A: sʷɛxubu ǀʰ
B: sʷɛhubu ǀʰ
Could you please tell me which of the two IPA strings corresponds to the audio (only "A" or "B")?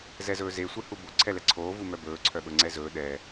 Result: B